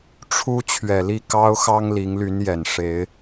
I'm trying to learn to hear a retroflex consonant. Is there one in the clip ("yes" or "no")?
yes